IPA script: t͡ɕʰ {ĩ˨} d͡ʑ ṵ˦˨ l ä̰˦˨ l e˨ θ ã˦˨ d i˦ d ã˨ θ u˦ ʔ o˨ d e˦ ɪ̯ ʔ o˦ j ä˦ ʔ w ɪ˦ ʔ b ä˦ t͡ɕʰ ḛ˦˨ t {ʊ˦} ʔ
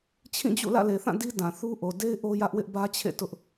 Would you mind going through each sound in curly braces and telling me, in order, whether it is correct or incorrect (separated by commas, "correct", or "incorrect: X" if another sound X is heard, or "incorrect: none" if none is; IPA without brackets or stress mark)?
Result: incorrect: ĩ˦˨, correct